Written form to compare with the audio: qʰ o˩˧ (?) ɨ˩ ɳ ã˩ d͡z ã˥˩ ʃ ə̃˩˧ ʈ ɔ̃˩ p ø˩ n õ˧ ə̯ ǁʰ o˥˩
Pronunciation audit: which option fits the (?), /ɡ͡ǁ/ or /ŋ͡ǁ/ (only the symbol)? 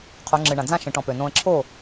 ŋ͡ǁ